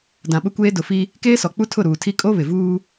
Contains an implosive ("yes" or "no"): yes